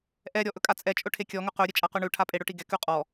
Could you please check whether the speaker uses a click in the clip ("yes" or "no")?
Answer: no